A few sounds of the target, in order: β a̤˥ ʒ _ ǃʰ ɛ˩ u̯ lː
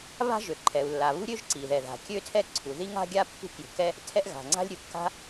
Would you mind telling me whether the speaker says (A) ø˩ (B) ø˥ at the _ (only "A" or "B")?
A